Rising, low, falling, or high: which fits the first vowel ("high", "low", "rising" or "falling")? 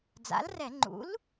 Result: rising